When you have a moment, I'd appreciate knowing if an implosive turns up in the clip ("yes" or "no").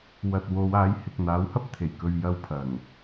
no